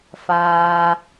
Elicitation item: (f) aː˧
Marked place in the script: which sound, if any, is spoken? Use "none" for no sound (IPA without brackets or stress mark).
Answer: f